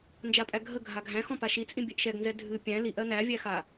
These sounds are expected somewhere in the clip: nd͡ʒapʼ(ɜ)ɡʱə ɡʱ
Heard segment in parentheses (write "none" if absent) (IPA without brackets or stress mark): æ